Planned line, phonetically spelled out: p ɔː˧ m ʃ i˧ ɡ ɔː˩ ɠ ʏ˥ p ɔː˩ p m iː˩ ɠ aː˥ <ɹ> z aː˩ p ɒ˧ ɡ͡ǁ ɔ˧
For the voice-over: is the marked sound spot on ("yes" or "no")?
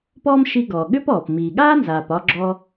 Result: no